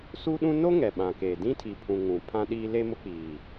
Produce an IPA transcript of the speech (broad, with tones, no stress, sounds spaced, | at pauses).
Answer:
s u˦ ɗ ũ˦ n o˦ ŋ ɛ˨ ɓ ã˨ k e˨ d ĩ˦ tʰ i˨ pʰ ũ˨ ŋ ũ˨ pʰ ã˦ ɗ iː˦ l e˦ m ʊ˦ k͡p iː˨